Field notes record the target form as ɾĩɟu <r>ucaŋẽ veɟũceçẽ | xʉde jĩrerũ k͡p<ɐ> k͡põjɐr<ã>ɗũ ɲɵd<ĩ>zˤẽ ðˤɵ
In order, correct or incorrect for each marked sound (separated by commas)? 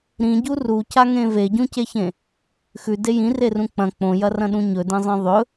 correct, incorrect, incorrect, incorrect